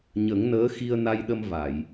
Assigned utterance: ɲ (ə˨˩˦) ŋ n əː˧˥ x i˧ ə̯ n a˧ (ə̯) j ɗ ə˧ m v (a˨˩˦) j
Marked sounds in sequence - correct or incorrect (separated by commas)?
correct, incorrect, incorrect